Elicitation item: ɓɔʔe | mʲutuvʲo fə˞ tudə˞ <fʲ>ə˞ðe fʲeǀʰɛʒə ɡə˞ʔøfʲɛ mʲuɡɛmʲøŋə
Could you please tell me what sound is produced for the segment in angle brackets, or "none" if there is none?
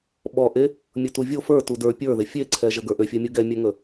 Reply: pʲ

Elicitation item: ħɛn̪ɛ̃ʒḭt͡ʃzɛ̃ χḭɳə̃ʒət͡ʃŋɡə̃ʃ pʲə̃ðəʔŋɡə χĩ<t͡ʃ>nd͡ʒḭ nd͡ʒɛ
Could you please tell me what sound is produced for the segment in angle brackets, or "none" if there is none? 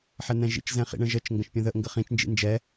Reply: t͡ʃ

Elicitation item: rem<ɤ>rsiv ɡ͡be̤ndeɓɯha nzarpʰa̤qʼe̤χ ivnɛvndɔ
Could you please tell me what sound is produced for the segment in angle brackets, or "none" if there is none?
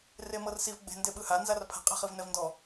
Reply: ɤ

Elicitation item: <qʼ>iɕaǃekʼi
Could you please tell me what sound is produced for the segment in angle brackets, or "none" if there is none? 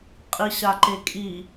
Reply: qʼ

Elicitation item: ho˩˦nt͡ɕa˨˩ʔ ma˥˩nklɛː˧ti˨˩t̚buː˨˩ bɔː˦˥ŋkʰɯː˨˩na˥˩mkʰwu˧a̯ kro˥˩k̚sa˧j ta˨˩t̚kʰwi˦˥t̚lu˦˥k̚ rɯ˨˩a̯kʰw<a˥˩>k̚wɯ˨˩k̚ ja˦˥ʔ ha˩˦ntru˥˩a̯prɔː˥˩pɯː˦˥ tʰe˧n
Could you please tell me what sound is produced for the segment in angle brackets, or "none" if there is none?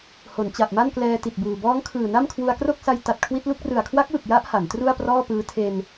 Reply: a˦˥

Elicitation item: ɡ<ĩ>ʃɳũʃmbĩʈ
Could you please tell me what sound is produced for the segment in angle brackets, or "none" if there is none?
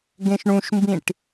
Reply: ẽ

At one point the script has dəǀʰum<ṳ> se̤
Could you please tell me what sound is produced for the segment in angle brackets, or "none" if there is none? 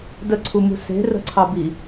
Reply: ṳ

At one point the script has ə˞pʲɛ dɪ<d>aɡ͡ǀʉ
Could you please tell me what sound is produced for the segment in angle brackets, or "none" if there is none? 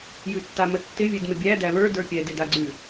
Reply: d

